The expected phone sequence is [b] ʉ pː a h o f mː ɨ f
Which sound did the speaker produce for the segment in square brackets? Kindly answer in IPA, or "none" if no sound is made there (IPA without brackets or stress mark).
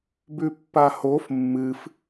b